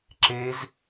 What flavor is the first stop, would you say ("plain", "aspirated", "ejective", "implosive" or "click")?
click